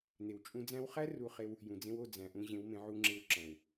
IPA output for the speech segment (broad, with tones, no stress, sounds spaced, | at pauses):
n̪ e˨ w t͡ʃʼ ũ˧ d͡z æ̃˧ w χ æ˦ r u˧ χ e˧ w | j ũ˨ d͡z ẽ˧ w o˦˨ d͡z æ̃˨ ʔ ũ˧ ʑ ẽ˨˦ w m ẽ˧ ʕ u˧ ŋ͡ǁ e˧ w ǁ æ̃˨ w